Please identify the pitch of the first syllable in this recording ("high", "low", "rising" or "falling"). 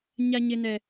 high